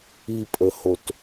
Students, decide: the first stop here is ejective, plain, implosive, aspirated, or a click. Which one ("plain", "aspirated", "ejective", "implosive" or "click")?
ejective